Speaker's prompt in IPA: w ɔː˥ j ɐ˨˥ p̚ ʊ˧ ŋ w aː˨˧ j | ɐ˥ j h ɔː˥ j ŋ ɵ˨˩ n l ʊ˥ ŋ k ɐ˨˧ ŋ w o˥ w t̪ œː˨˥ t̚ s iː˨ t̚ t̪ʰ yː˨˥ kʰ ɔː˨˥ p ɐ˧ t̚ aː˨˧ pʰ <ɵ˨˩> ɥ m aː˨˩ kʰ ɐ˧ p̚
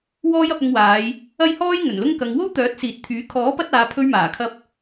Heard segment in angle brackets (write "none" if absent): ɵ˧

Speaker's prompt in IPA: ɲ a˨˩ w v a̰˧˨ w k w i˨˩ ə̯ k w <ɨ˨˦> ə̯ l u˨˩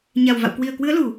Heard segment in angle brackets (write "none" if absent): ɨ˨˦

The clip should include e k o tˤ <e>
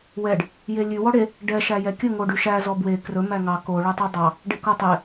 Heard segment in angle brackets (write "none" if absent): e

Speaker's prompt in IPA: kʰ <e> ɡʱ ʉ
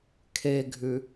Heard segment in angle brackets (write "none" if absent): e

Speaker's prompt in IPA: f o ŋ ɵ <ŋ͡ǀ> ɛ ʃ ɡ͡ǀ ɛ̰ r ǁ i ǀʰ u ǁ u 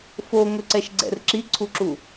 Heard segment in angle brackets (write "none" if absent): ǀ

